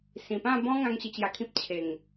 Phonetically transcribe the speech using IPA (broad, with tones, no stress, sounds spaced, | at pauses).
s ĩ˨˩ p ã˥˧ b ɔ̃˦ ŋ ã˦ ŋ ɕ i˧ t͡ɕ j a˧ kʰ ĩ˦ p̚ t͡ɕʰ e˨˩ ŋ